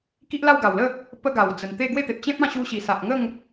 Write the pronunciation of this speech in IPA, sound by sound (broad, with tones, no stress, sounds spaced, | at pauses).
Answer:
k i˦ ʔ l a˥˧ w ɡ a˨˩ w l ə˥˧ | p ə˦ ɡ a˨˩ w d͡z ə˨˩ n t̪ e˥˧ ɡ w e˥˧ t̪ e˨ p̚ t͡ɕ ẽ˦ p̚ ã˥˧ ɕ u˧ ɕ i˨˩ s a˨ ʔ ŋ ə˥˧ ŋ